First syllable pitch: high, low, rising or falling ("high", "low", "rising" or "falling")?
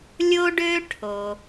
high